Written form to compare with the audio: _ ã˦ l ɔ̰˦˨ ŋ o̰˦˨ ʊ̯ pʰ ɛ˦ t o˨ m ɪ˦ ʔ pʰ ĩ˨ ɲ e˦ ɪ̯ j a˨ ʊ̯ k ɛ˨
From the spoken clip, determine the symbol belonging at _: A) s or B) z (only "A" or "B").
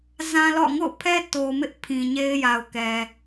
B